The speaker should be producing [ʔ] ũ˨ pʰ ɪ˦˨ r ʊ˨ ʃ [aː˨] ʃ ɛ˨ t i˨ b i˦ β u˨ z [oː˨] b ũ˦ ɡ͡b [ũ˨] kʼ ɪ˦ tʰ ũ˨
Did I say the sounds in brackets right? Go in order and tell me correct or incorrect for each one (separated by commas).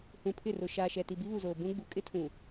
incorrect, correct, correct, incorrect